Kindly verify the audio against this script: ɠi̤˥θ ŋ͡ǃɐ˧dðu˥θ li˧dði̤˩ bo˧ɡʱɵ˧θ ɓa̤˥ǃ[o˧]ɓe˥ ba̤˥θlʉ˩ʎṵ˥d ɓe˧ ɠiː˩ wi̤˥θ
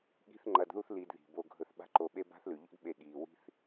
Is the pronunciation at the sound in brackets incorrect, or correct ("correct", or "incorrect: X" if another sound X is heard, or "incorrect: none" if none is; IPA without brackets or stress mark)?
correct